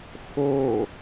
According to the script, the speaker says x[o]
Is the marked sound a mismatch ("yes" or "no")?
no